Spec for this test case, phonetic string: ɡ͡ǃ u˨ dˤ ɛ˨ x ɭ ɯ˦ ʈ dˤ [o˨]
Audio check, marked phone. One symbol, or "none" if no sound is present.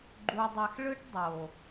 o˨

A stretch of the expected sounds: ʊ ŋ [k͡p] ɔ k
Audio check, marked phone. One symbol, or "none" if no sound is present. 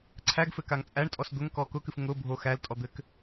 k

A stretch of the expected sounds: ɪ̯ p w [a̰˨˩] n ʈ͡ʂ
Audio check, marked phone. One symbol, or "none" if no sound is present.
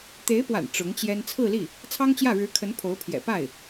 a̰˨˩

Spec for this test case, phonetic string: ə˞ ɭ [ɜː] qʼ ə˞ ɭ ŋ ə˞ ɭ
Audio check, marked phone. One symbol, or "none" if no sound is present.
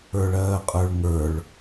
ɜː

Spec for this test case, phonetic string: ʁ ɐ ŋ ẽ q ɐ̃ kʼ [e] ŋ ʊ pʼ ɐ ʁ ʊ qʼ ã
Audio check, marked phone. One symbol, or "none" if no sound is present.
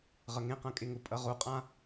e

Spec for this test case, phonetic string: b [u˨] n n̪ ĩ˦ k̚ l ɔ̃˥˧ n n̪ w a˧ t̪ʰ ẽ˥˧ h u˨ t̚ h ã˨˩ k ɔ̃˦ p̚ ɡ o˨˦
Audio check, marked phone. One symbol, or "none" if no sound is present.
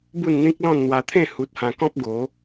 u˥˧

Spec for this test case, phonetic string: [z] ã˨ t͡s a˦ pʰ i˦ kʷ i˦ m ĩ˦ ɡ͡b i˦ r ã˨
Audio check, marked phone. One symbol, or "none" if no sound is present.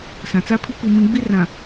s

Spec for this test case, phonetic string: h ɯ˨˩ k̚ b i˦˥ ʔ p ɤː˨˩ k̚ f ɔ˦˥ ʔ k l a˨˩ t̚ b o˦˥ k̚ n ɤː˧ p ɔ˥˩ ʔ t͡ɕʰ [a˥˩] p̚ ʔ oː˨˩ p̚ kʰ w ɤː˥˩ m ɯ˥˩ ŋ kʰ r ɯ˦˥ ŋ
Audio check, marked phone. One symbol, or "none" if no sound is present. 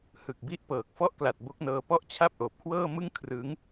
a˥˩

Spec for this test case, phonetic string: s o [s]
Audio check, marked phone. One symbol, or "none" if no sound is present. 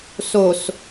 s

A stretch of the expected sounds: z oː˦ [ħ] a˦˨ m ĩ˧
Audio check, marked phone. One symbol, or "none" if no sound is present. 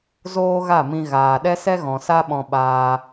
ɣ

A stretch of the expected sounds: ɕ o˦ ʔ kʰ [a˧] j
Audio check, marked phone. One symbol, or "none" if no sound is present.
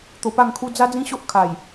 a˨˩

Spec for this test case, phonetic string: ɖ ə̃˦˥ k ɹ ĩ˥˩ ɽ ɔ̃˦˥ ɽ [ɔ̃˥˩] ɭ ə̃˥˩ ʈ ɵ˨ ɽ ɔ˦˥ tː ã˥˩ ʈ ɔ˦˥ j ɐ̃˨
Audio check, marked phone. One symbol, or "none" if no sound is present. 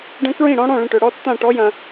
ɔ̃˥˩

